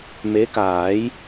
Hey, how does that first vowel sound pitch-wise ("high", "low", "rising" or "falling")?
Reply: rising